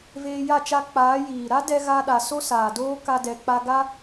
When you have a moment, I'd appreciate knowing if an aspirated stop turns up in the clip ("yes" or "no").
no